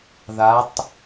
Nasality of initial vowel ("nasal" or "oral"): oral